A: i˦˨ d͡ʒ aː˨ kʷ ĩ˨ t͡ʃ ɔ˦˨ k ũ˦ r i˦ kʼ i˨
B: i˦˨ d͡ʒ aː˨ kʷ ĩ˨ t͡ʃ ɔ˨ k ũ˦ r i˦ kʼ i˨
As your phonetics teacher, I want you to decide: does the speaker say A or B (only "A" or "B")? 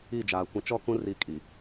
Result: A